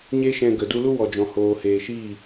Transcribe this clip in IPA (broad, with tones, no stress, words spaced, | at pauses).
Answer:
ɲe˦ʃɛ̃˧ɡə˨ du˧lu˦ wɔ˨d͡ʒɔ̃˨ hoː˨heː˨ʃiː˦˨